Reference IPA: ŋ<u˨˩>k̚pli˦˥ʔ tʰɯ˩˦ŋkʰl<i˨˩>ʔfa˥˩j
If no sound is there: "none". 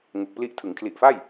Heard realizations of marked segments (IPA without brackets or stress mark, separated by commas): u˨˩, i˨˩